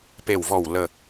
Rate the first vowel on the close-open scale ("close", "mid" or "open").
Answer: mid